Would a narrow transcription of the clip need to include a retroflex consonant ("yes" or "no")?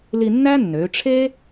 yes